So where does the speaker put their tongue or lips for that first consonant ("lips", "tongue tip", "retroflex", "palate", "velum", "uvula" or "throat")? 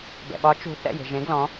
lips